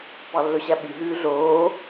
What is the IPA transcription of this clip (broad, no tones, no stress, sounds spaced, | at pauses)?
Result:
p ɑ lː ɵ ɕ æ ɓ y ɦ ʉː ɮ oː